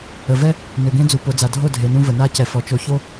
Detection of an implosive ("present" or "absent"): absent